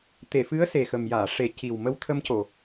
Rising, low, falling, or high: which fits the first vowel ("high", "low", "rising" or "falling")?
low